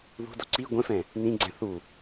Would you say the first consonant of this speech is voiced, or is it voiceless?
voiced